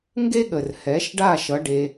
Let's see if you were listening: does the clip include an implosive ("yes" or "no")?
yes